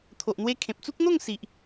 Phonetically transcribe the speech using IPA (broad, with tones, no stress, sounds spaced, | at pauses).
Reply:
t̪ʰ o˨ ʔ n̪ w e˧ kʰ ẽ˨ p̚ t͡s u˦ k̚ n̪ o˥˧ ŋ s i˨ ʔ